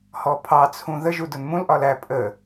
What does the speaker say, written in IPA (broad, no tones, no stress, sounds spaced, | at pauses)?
h ɔ pʰ ɑ t͡sʰ ũ ð ə ʒ u d ʊ n m ũ l ʔ ɒ l æ pʼ ə